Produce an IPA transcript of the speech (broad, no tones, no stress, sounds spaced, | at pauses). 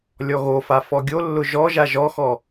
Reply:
lʲ ɔ ɣ o f a f ɔ ɡʲ o lː ʊ ʒ ɔ ʒ a ʒ ɔ x ɔ